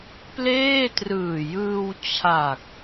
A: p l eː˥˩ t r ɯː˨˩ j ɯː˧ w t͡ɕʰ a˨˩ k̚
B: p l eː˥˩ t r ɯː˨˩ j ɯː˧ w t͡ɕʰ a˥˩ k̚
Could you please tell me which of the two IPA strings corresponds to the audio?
A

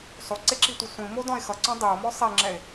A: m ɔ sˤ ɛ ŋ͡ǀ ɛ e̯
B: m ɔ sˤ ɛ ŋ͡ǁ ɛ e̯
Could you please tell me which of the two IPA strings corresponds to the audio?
B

